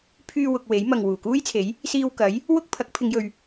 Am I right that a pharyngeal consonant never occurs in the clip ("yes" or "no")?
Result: yes